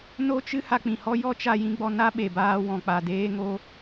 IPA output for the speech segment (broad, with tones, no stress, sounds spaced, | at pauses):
n o˦ t͡ʃ ɨ˦ h a˧ k͡p ĩ˨ h ɔ˦ j ɔ˦ t͡ʃ a˧ j ĩ˧ ɡ͡b ɔ˧ n a˦ ɓ e˨ b aː˧ w ɔ̃˨ k͡p a˨ d eː˧ ŋ o˧